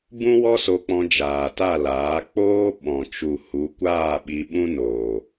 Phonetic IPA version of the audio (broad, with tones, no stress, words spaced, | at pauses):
bũ˦wɔ˦so˧k͡pɔ̃˧ d͡ʒaː˨ta˦˨laː˨˦ k͡poː˦ ɓɔ̃˨t͡ʃu˨ hu˨˦kʷaː˦˨ ɓi˧ɓũ˦noː˨